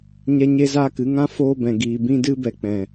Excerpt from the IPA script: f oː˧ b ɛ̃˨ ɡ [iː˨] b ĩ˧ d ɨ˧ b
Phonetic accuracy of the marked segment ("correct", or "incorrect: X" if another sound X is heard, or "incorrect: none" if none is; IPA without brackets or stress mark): correct